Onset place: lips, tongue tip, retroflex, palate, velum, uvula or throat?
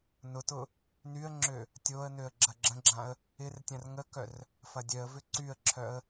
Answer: tongue tip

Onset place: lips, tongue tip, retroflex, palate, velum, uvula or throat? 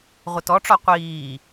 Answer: uvula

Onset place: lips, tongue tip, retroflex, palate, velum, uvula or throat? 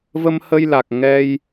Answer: lips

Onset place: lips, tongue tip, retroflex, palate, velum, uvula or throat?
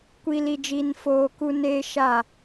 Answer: velum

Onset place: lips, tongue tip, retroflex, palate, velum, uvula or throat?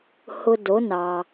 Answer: throat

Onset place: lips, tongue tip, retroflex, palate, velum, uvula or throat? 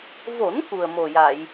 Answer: lips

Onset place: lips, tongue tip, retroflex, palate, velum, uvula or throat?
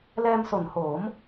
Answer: tongue tip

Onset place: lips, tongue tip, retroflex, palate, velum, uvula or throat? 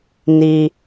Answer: tongue tip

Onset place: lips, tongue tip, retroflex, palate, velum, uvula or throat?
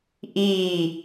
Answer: throat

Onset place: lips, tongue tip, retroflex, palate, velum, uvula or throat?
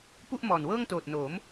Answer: lips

